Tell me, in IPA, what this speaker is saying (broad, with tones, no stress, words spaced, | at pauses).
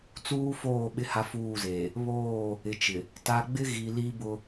t͡suː˦foː˦˨ ɓɪ˦ha˦fuː˦˨zeː˨ | βoː˦˨ | ɪ˨t͡ʃɪ˨ | ta˨ɡ͡bɪ˦ ɣi˨li˦bʊ˦